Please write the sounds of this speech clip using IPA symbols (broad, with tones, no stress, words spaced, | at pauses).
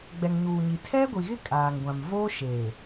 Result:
ɡ͡bɛ˨ŋɲuː˨ɲi˨ tʰɛ˦ɡʷi˨ɣɪ˦ kʼaː˨ŋɡʷã˨m voː˦ʃeː˨